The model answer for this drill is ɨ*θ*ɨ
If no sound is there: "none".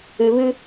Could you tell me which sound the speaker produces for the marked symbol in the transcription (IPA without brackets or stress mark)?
β